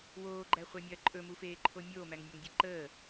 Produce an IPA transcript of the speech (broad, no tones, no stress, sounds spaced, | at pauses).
w oː ɡ͡ǃ æ χʷ æ mʲ ɐː ǃʼ ɵ m u f eː ǃʰ o mʲ oː m æ ŋ nʲ a ŋ dʲ e ǃ əː